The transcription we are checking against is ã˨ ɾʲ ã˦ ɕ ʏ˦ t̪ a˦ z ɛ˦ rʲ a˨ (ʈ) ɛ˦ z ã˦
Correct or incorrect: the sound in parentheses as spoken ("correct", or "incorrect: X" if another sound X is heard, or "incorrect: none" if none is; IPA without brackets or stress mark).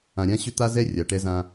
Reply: correct